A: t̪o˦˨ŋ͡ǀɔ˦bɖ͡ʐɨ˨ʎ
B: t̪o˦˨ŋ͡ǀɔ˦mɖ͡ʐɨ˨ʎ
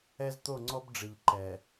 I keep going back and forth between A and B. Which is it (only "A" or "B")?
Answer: A